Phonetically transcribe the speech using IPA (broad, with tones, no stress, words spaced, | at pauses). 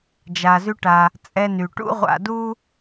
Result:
d͡ʒa˩zy˧ʈa˩ | t͡sʼɛ˧ny˩ʈṵ˥ ʁʷa̰˧du˥